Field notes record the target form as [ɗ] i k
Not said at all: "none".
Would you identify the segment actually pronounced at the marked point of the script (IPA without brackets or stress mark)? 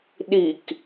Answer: ɗ